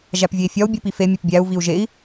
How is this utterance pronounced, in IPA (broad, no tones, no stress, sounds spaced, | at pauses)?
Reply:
ʒ æ p vʲ e i̯ fʲ ɒ u̯ bʲ u p i f e mʲ e p bʲ æ u̯ v i u̯ ʒ e i̯